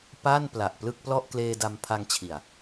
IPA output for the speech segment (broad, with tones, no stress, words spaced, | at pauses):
pa˥˩npla˨˩ʔ plɯ˥˩k̚plɔ˥˩ʔ kleː˧da˧m pʰa˧ŋt͡ɕʰi˨˩a̯